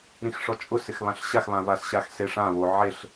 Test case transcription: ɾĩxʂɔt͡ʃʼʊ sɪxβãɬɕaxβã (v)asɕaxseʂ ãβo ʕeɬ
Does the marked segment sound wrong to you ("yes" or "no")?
no